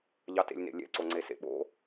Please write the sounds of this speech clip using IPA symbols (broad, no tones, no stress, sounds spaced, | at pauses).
ʎ ɑ t ḛ lʲ n ḛ lʲ ɛ̰ ǀ o ŋ͡ǀ e s ḛ ɓ o̰